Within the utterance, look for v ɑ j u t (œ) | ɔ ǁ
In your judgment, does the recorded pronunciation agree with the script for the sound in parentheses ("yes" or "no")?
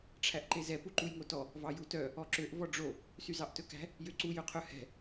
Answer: yes